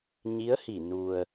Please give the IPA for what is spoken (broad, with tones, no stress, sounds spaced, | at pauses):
ɲ i˧˥ ə̯ h i˧˩ n u˩ ə̯